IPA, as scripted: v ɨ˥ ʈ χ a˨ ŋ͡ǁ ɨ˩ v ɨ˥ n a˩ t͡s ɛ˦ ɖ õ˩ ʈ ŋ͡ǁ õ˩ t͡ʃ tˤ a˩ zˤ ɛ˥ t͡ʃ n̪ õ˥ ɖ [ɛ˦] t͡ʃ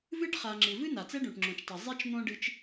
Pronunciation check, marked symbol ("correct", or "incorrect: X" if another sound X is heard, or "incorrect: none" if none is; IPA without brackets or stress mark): incorrect: ɨ˦